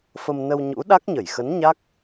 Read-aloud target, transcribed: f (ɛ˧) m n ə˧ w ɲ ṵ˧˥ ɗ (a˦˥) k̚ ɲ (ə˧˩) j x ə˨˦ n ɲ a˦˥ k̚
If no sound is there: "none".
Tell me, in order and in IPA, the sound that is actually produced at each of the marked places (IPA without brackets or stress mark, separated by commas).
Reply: ə˧, a˦˥, ə˧˩